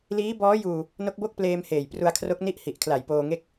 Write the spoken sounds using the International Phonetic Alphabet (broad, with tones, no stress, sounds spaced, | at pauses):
l iː˦˥ b ɔː˦˥ j uː˧ | n o˦˥ k̚ b o˥˩ k̚ p l eː˧ m h eː˨˩ j p r u˧ a̯ kʰ r o˦˥ k̚ n i˥˩ ʔ h i˨˩ ʔ kʰ l a˨˩ j p oː˧ ŋ e˥˩ k̚